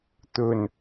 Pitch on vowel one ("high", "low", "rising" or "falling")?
low